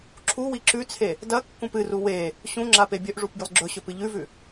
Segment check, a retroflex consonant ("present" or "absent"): present